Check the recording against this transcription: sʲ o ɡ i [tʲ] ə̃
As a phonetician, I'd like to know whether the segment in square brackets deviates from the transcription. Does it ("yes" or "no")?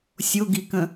yes